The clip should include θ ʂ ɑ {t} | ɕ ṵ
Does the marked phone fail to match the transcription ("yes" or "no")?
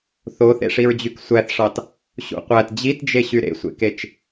no